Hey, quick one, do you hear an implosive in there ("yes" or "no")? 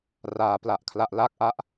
no